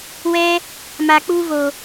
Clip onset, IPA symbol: w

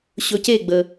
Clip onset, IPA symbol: ɕ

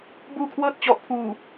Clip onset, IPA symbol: b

